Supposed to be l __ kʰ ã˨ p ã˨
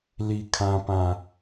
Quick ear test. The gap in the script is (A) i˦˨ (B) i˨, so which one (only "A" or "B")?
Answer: B